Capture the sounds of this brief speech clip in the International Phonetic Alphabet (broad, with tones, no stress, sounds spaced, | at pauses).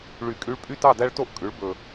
ɭ y˨˩˦ kʼ y˧˥ ɭ pʼ y˥˨ t ɑ˥˨ d æ˥ ɭ t o˥ ʔ kʼ ʉ˩˥ ɭ b ɵ˨˩